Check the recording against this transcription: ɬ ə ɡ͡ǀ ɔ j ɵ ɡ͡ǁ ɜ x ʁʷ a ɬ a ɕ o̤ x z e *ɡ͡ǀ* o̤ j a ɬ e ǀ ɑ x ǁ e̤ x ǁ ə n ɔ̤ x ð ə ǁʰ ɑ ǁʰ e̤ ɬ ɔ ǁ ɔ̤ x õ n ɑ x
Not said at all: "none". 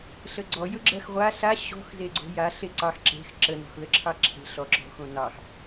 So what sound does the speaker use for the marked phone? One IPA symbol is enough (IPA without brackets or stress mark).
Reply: ɡ͡ǀ